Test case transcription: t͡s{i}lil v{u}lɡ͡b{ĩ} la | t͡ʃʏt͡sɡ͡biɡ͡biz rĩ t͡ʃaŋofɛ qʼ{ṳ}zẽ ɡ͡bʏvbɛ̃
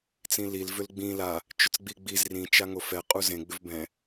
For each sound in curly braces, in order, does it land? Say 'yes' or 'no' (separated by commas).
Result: no, no, yes, no